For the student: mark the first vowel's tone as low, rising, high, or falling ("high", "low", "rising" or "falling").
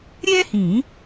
high